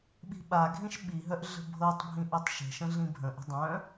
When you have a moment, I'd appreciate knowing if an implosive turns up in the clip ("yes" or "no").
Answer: yes